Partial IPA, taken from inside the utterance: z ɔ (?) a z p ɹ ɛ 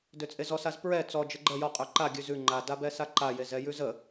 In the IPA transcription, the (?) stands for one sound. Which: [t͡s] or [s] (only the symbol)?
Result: s